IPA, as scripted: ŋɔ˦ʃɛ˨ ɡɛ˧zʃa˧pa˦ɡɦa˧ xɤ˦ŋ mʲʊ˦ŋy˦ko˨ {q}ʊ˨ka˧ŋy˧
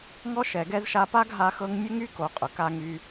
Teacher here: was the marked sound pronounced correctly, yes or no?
no